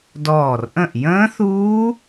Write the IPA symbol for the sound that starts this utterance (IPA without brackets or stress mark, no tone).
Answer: d